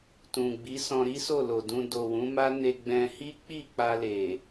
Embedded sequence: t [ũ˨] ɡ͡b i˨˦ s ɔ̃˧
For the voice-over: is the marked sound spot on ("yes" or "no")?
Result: yes